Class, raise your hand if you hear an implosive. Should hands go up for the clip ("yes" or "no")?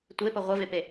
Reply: no